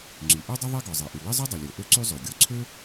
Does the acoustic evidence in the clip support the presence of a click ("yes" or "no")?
yes